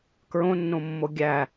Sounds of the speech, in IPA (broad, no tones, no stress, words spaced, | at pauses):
kɹõnːõmːo ɡʲæ